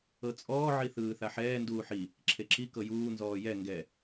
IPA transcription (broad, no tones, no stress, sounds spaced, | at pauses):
ɤ t͡sʼ ɔː ʕ i θ ɯː θ a ħ ɛː n d uː ħ i | ǁʰ e ǁ i k ɤ j uː n z ɔː j ɛ ŋ ɡ ɛ